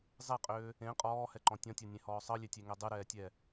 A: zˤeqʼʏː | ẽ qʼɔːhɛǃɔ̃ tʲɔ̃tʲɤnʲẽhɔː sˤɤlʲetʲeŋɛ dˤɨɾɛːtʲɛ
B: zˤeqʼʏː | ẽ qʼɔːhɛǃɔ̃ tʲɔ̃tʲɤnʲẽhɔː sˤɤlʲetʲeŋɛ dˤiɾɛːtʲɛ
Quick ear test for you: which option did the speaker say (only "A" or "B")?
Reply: A